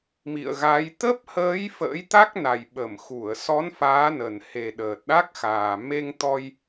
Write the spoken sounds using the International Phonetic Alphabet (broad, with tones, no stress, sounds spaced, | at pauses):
m ḭ˧˨ ə̯ ɣ a˨˦ j t̪ ə˦˥ p̚ h əː˨˦ j f ə̰ː˧˥ j t̪ a˦˥ k̚ n a˨˩ j ɓ ə˧˩ m x u˧˩ ə̯ s ɔ˨˦ n f aː˨˦ n ə˨˩ n h e˨˩ ɗ əː˨˩ t̚ ɗ a˦˥ k̚ x aː˨˩ m e˧ ŋ t̪ ɔ˧ j